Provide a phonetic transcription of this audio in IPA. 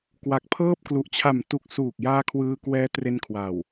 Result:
k w a˨˩ k̚ pʰ ɤː˥˩ p̚ k l u˨˩ ʔ t͡ɕʰ a˨˩ m t u˨˩ k̚ s uː˨˩ k̚ j aː˧ kʰ w ɯː˧ k w ɛː˦˥ t r e˧ n kʰ w a˨˩ w

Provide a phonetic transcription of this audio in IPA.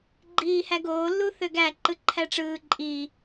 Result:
ɡ͡ǃ iː h æ ɡ oː l u θ ø ɡ æ ǃ ɯ ǃʰ æ ʈ͡ʂ ɯː ǃʼ i

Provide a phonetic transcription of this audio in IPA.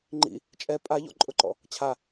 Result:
ŋ͡ǃ ḭ | t͡ʃʼ ɛ pʼ a ʎ ɔ̰ ǃʼ ʊ ǃ ɔ̰ | t͡ɕʰ a

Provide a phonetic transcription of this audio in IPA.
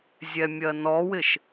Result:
zʲ ɛ mʲ ɜ n ɔ w ɪ ʃ

